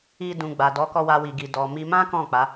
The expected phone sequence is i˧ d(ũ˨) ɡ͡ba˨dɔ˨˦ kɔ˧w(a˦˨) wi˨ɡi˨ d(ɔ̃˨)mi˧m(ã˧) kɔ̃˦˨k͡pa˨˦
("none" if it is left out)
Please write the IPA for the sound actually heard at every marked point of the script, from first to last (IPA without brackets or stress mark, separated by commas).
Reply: ũ˨, a˧, ɔ˨, ã˦